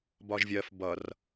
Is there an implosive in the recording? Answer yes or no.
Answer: no